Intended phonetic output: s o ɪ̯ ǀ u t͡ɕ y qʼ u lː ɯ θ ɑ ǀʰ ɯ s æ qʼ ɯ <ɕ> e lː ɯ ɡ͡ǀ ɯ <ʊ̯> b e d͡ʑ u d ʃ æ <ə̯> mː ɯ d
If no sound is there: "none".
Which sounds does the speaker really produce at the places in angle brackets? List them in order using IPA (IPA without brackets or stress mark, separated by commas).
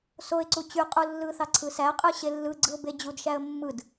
ɕ, ʊ̯, ə̯